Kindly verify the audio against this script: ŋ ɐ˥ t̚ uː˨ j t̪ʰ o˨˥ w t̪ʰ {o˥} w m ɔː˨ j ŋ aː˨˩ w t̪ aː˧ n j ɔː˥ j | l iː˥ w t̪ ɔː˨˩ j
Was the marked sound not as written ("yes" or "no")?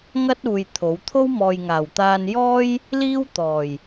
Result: no